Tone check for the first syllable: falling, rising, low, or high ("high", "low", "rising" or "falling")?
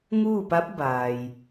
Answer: falling